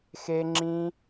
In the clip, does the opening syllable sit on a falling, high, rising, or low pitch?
high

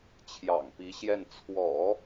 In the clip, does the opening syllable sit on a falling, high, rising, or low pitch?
low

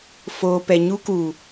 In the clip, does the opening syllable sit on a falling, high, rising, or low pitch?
low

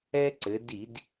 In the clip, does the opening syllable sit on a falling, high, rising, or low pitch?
high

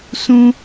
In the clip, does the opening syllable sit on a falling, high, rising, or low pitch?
high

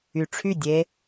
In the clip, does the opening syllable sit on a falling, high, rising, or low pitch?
low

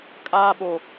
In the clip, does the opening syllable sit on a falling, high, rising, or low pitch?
high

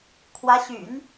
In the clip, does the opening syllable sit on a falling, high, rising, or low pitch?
rising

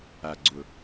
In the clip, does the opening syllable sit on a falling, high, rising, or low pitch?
low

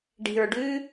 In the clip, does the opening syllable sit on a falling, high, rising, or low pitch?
low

